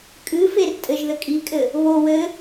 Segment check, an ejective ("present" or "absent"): present